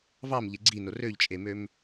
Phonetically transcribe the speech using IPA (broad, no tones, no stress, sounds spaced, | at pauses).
v ɑ m ʎ e ɡ͡ǀ i n o r ø ʎ t͡ʃʼ e m ø m